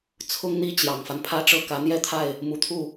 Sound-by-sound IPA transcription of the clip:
t͡sʰ ʊ˥ ŋ n̪ i˥ t͡ɕ j ɑ˨˩ ŋ f a˦ n pʰ ä˥ ʈ͡ʂ ɤ˥˩ k ä˧˥ n̪ j ɛ˥ t̪ʰ a˥˩ ɪ̯ | m u˨˩ t̪ʰ u˥˩

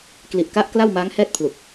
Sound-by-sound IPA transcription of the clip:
k l i˨˩ ʔ k a˦˥ ʔ k l a˥˩ w m aː˦˥ ŋ h ɛː˥˩ t̚ pʰ l u˨˩ k̚

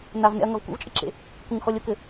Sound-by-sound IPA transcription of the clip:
n a v n ɛ̰ ɐ̯ ŋ ɐ v kʷ ɛ̰ v t͡ʃʼ ɨ ǁ ḛ | kʷ ɘ ŋ x ɔ lʲ o k ɘ

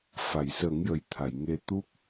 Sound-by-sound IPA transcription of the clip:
f a˨˩˨ j s ə˨˩˦ ŋ j ə˨˩ j t̪ʰ a˨˩˨ j ŋ e˧ t̪ u˦˥ k̚

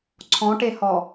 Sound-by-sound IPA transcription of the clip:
ǀʰ ɔ̃ ʈ e h ɔ

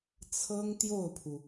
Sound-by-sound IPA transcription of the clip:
t͡sʰ ɤ˥ ŋ t̪ j o˥˩ ʊ̯ pʰ u˩

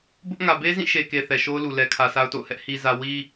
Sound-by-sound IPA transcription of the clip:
b ʊ˦ ʔ ŋ ä˨ b e˦ z ĩ˦˨ ʃ e˨ k e˨ θ ɛ˨ ʃ o˦ ʊ̯ l u˨ l ɛ˨ kʰ ä˨ sʰ a˦ ʊ̯ t o̰˦˨ ʊ̯ h ɛ˦ ʔ h i˨ z ä˨ w i˦

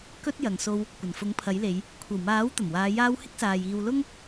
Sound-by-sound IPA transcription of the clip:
k ɵ˧ t̚ j ɐ˨ ŋ s o˧ w | kʷ ɐ˨˩ n f ʊ˨˥ ŋ pʰ ɐ˨˥ j l e˨˧ j | kʷʰ ɐ˨˩ w m aː˨˥ w t̪ ɐ˨˩ m w aː˨˧ j aː˧ w h ɪ˥ k̚ s aː˨ j iː˧ w l ʊ˥ ŋ

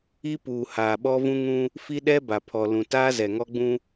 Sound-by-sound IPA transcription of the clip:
i˦ p uː˨ h aː˨ ɓ ɔ˦ v ũ˦ ŋ ũ˦ | f i˦ ɗ ɛ˦ b a˨ pʰ ɔ˨ l ũ˨ t aː˦ z ɛ˨ ŋ ɔ˦ ɡ͡b ũ˦

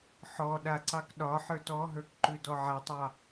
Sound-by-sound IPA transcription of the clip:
ħ ɔ ɗ a ǀ ɑ k ɗ ɒ ħ ə˞ t ɔ ɦ ə˞ k ǃ ʉ d ɔ ʕ a tˤ ɑ

